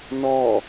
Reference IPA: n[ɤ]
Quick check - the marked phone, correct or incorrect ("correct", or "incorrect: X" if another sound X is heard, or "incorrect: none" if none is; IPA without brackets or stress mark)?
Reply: incorrect: ɔ